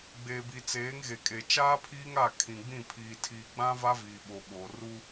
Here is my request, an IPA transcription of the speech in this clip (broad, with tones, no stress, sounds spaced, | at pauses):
ɡ͡b eː˨ b i˨ t͡s eː˨˦ ŋ ɣ e˨ kʼ e˨ t͡ʃ aː˦ pʰ iː˦ ŋ a˦˨ kʰ ĩ˨ ɡ͡b ĩ˦˨ pʰ iː˨ tʰ iː˨ ɡ͡b ã˦ v a˦ v iː˨ ɓ o˨ ɓ oː˨ r u˦